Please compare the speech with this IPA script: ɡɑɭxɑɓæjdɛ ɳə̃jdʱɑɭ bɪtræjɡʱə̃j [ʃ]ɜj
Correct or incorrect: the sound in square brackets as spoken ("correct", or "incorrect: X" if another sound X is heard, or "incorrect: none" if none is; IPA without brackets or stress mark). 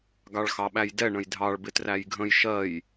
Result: correct